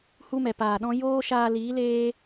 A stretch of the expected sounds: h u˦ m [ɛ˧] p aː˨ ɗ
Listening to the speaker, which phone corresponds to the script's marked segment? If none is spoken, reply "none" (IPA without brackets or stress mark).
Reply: ɛ˨